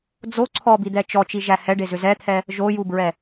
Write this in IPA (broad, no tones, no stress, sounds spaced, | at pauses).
d͡z o ǀʰ ɔ b i d̪ ɛ t͡ʃ ɔ t͡ʃ i ʒ æ h ɛ ɖ e z ʏ z ɛ t̪ʰ ɛ | ʒ o j u b ɹ ɛ